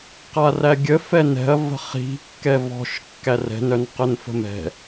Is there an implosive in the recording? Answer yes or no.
no